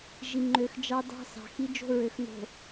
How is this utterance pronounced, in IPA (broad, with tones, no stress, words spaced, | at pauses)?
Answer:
ʒi˨ŋ͡ǃø˨x d͡ʒɑ˦ dɑ̤˦sɑ̤˨xi˦ d͡ʒo̤˦ɹø˨x no̤˨